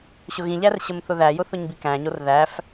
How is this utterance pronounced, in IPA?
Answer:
ɕʊɣĩʎær ɕəmθʊðæjʊ θʊɲbikæ̃ɲor ðæf

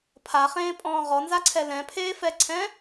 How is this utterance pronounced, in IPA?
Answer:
pʰaχẽːpʼɔ̃ː ʁɔnzaǀʰɛ lɛ̃pʰeːfɛǀʰɛ̃

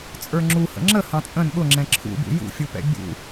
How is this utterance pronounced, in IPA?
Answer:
t͡sʼə˞ŋ͡ǁuhə̰ ŋ͡ǁə hɑ̃t͡sʼə̃n ɠʊŋ͡ǁɛ̃ ǁʰṵbṵ jṵfʲupɛ̰ bʲṵ

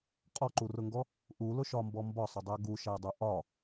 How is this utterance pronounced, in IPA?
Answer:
qʼɔǃurʊŋɡɔ | ʔulʊʃɒmbɔ mbɒsˤʊdˤæ ɡuʃædˤu ʔɒ

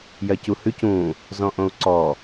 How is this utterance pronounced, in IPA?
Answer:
jɜcuhʉc ũ | zɔ̃ʔõu̯ǀɔ

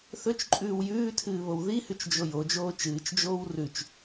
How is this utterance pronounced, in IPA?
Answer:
θɵt͡ʃǃʼʉːw jʉːtʰɨːβow ðihʉt͡ʃd͡ʒo jod͡ʒoː t͡ʃɨːt͡ʃd͡ʒoːw rʉt͡ʃ

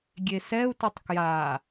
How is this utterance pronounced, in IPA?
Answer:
ɡʲesɛu̯ tutˤkja

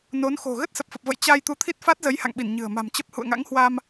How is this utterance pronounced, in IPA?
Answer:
no˨˦nxo̤˨˩ ɣə˦˥t̚sə˨˩p̚fə˨˩p̚və̰˧˨j t͡ɕa˧j t̪u˨˦t̪ʰi˦˥t̚fa˦˥t̚ zə˨˦j ha̰˧˨ŋɓi˧˩n ɲɨ̤˨˩ə̯ ma̤˨˩mt͡ɕə˦˥p̚ hṵ˧˨ə̯ŋa̰˧˥ŋhwa˧m

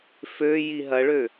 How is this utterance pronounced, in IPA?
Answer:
fø jiɦɐɭø

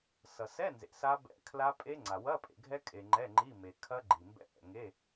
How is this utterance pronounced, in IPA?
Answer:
sʌ˨sɛ˧˥˧nzḛ˨ sa˦˥bɛ̰˧˥˧ kʰla˦˥pʼe˦˥ŋ͡ǀa˨ wɐ˧˥˧pʼḛ˨ɡʱɛ˦˥ kʼe˨ ŋ͡ǃɛ˧˥˧ŋ͡ǃi˧˥˧ me˨kʰɐ˦˥ ɡ͡ǃi˨mbɛ̰˦˥ʔɛ̰˨ ŋe˧˥˧

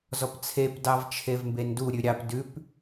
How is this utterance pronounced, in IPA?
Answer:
zɔpt͡sʰep dɑvt͡ʃʰevmbendu ɾʲʉɾʲɑp dʉp

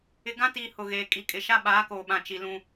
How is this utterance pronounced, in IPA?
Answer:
ɪ˨ɡã˦tiː˨ hʊ˨ɣeː˨ kʼi˨ kʼɪ˨ʃa˦ ɓaː˨˦koː˨ɓã˨ t͡ʃi˨lũ˦

